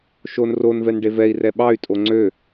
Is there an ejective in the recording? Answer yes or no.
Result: yes